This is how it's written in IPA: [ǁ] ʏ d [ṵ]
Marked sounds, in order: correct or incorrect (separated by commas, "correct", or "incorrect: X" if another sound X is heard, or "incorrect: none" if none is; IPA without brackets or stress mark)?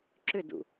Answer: correct, correct